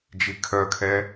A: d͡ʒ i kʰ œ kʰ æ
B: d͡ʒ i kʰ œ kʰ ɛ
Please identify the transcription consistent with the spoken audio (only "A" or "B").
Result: B